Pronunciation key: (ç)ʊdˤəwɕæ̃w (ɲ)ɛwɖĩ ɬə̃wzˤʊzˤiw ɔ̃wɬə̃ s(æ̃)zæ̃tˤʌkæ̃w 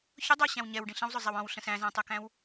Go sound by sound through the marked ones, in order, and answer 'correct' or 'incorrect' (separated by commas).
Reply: correct, correct, correct